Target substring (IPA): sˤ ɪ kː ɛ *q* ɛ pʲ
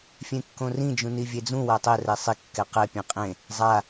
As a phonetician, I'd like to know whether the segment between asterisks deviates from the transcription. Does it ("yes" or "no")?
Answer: no